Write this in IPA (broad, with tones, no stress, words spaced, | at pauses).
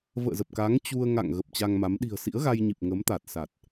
və̰ː˧˨zə˨˩p̚ka˨˦ŋ t͡ɕu˧ə̯ŋa̰˧˨ŋ ɣə˨˩p̚t͡ɕa˧ŋma˨˦m ɗi̤˨˩ə̯sḭ˧˥ə̯ɣa˧jɲi˨˩p̚ ŋə˨˦mt̪a˨˩t̚ sa˨˩t̚